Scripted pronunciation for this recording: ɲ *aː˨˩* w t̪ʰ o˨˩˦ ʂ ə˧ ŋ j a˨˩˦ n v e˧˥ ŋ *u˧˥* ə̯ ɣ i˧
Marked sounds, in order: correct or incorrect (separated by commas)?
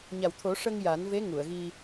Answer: incorrect, incorrect